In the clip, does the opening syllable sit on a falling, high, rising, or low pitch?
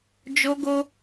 high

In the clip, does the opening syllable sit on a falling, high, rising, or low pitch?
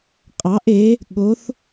rising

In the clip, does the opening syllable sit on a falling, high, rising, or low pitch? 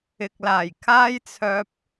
low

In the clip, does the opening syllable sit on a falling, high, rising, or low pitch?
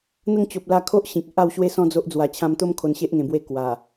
falling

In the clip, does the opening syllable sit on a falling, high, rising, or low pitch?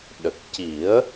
low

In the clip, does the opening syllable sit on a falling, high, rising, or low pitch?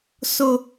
high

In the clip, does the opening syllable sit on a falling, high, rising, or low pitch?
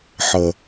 low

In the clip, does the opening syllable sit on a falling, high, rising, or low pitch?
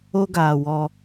high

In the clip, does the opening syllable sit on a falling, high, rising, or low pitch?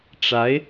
rising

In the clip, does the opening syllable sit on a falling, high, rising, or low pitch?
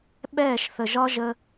falling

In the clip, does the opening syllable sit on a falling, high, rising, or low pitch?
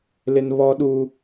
high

